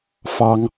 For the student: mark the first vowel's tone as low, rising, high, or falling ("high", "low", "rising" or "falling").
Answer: high